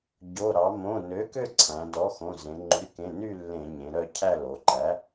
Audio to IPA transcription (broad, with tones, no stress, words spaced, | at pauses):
ɟo˩˧˩ ɾɑ˩˧mõ˩˧˩nø˩˥kø˦˨ ǀʰæ̃˩˧ dɔ˩˥xõ˩˧˩zẽ˩˧ ŋ͡ǃy˩˥kẽ˩˧˩ny˦˨ lːẽ˧˩˧ɲẽ˩˧ɾœ˦˨ cʰæ˦˨lo˩˧ǃæ˩˥